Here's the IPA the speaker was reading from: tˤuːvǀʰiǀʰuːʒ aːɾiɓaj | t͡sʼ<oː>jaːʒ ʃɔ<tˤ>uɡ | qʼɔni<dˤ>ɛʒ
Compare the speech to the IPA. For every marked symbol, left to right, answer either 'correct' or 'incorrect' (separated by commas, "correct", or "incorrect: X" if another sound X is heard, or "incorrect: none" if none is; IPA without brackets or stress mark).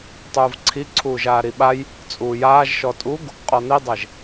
incorrect: uː, incorrect: tʼ, correct